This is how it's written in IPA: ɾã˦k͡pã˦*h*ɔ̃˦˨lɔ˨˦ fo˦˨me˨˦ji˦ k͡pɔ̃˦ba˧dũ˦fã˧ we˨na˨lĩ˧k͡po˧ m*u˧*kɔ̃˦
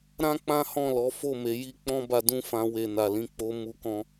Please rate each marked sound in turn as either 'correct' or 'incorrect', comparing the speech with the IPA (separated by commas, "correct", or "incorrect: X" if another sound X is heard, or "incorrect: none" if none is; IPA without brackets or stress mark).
correct, correct